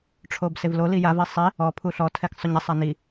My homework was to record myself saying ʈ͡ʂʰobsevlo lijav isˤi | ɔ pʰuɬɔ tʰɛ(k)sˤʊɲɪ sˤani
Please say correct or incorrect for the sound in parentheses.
correct